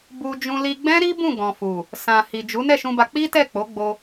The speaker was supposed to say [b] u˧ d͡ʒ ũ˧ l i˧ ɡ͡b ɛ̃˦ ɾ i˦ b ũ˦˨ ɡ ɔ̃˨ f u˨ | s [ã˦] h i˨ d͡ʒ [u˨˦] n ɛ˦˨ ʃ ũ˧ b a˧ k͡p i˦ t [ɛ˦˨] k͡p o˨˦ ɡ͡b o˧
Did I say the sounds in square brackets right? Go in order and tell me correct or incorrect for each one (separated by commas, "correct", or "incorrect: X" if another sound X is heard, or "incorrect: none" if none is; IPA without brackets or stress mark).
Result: correct, incorrect: ã˨, correct, correct